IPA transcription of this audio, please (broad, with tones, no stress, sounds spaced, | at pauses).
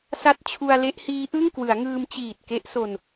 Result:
s a˦˥ t̚ t͡ɕʰ u˧ a̯ l e˦˥ ʔ h iː˦˥ ʔ ɯ˥˩ ŋ k w ɯ˩˦ a̯ ŋ ɯː˧ m t͡ɕ iː˨˩ t̚ k e˦˥ ʔ s o˧ n